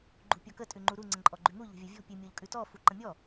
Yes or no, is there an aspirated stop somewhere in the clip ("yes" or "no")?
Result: no